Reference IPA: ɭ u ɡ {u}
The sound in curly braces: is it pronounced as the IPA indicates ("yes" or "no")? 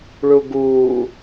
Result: no